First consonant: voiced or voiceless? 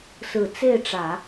voiceless